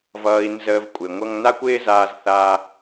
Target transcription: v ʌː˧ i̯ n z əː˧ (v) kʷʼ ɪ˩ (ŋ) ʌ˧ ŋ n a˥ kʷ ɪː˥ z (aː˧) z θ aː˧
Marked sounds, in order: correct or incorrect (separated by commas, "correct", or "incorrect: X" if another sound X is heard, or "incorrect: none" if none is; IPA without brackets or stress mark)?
correct, incorrect: ŋʷ, correct